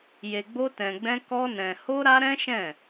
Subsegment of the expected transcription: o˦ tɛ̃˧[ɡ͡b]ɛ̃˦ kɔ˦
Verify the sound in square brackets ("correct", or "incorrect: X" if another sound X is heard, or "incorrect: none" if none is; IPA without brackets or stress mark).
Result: correct